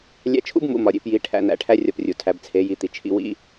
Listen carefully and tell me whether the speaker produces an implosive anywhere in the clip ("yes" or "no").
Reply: no